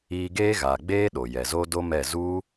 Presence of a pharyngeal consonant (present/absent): absent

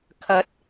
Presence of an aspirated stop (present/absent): present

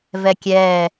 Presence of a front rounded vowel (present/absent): absent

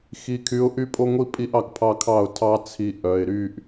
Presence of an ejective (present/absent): present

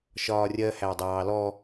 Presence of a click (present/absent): absent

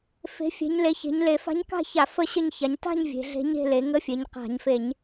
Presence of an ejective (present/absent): absent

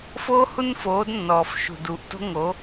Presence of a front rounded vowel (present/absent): absent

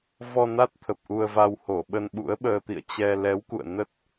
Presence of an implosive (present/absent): present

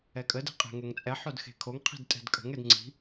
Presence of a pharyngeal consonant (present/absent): present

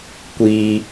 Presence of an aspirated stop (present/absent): absent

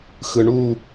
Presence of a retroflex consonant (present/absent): present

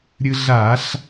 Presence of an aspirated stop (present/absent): absent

